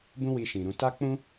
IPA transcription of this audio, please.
bũ˦wi˧ʃĩ˨ɾũ˧ ta˦k͡pũ˦

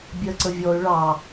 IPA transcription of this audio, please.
bʲɜǀəvʲɔy̯ ɭɑ

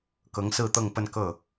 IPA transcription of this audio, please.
kɤ˧˥ŋsɹ̩˥˧t̪ɤ˥˧ŋ pə˥˧nkɤ˥˩

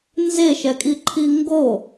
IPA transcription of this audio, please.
nzeʃɛkʼiǃʰi ŋɡo

